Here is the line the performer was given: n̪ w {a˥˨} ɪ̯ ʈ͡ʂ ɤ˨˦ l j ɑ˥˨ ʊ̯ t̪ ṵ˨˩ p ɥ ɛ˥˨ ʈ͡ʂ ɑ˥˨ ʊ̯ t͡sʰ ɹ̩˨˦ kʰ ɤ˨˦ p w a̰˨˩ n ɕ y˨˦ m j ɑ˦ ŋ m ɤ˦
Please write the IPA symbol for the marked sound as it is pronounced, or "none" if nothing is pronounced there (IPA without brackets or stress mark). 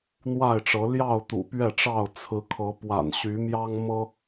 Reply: a˥˨